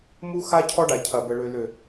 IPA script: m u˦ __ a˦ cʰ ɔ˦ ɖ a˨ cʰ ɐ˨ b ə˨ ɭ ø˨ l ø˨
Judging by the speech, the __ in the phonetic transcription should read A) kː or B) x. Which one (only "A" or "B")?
B